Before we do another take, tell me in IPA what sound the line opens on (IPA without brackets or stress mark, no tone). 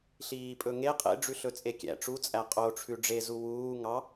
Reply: ɬ